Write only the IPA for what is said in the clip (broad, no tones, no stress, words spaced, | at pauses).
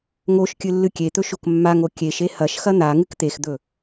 ŋoʃ kʲɨlːɨkʲet̪ɵ ʃokmːaŋo kʲeʃe hɐʃxɐ n̪a ŋɨkt̪exd̪ɵ